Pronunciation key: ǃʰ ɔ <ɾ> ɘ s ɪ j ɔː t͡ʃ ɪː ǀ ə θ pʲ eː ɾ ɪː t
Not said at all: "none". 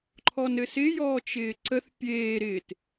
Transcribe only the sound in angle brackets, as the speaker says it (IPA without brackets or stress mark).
n